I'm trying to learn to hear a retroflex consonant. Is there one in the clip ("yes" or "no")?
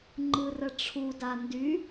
yes